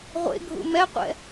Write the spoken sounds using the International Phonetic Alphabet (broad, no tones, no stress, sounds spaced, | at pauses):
ʁʷ ḛ ɡʱ ṵ m ɛ qʷ ɛ̰